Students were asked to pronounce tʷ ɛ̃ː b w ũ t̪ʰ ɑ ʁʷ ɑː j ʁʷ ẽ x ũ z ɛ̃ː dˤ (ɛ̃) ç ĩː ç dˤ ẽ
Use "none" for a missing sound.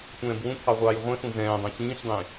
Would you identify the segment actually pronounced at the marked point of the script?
ɛ̃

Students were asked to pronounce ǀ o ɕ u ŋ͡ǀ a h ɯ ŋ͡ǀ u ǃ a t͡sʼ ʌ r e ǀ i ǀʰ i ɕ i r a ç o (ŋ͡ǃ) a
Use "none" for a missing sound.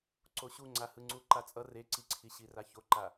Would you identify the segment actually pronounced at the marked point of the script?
ǃ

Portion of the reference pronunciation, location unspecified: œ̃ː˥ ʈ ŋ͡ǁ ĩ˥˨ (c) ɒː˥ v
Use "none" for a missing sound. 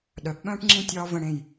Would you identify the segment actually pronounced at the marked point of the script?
tʲ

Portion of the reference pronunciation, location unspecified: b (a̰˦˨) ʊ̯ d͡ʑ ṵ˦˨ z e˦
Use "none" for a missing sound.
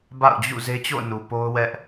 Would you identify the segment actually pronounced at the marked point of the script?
a̰˦˨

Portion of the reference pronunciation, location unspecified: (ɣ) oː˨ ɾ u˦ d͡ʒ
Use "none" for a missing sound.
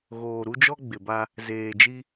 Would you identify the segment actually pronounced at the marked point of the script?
ɣ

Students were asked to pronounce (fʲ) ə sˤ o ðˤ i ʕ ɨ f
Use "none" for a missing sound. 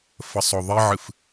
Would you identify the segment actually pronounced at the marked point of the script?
f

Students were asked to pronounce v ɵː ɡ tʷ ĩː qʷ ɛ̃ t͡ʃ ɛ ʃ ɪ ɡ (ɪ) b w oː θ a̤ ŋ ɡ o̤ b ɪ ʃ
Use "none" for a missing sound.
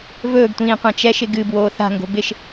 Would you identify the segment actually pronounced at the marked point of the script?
ɨ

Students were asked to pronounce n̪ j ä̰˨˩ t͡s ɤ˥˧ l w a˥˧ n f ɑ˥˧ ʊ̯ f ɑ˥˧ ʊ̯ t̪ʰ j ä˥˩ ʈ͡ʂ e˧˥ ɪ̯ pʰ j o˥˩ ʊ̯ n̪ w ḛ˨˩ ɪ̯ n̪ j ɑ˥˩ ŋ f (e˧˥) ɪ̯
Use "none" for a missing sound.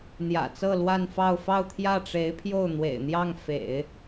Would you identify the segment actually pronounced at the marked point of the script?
ḛ˨˩˦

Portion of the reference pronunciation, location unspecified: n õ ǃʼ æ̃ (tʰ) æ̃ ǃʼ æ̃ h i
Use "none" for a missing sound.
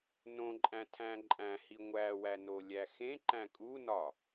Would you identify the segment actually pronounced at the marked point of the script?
tʰ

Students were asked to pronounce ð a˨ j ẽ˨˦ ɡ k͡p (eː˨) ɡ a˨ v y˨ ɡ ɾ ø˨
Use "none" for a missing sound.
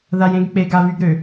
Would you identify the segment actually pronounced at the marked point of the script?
e˨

